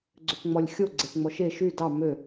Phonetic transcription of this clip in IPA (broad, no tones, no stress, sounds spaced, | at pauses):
ɡ͡ǀ ø p ŋ͡m ɔ lʲ xʲ o ɡ͡ǀ e p ŋ͡m ɔ ʃ e ʃ y d ɑ m ø